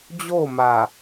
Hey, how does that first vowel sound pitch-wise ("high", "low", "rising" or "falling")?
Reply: falling